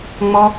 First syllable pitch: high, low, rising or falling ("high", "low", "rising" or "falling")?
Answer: high